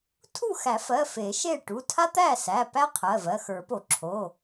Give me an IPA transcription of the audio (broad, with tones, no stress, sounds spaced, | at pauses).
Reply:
tʰ u˥˨ x æ˨˩˦ f ɜ˩˧˩ f e˨˩˦ ʃ e˥˨ ʈ u˩˧˩ tʰ a˥ t̪ æ˥˨ s æ˩˧˩ p æ˥ qʰ ɜ˩˧˩ v ɜ˩˧˩ x ə˞˨˩˦ p o˨˩˦ ǁʰ o˩˧˩